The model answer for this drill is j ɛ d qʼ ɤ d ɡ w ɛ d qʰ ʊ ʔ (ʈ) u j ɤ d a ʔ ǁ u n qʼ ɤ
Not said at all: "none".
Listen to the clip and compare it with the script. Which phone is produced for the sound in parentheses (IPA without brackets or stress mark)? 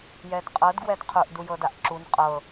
d